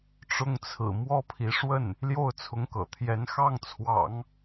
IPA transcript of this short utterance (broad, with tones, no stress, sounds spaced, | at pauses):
ʈ͡ʂ ʊ˥˩ ŋ t͡sʰ ɹ̩˨˩ m w ɔ˥ pʰ i˧˥ ʂ w ə˥˩ n | l j o˥˩ ʊ̯ t͡sʰ ʊ˧˥ ŋ k ɤ̰˨˩ t̪ʰ j ɛ˧˥ n x ɑ˥˩ ŋ t͡sʰ w ɑ̰˨˩˦ ŋ